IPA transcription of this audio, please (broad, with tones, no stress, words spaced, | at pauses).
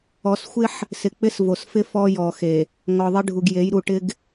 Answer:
ɔ˨sxʷɪ˦ħ | sɪ˨k͡pɪ˦s vo˨sfɪ˦ fɔ˦jɔ˨xe˨ | ŋɔ˨ðˤɪ˦ɖʱu˨ɡje˨˦j ɾu˨ʈɪ˦ɡ